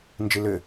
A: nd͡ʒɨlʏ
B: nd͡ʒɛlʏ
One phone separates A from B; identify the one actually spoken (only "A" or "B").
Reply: A